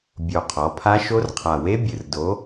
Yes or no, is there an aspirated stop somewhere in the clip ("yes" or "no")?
yes